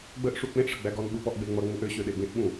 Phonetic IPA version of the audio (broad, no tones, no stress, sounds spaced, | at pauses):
ɡ͡b ə ʔ ʂ u k͡p ẽ ʔ ʂ ə ɡ͡b æ ɡ ɔ n ɓ u p ɔ ʔ ɡ͡b e ŋ͡m ʌ ŋ͡m u ʔ ø ɕ ø ɗ e ɡ ẽ ʔ ɓ ũ